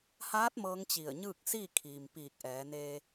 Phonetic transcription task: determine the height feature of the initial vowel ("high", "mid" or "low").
low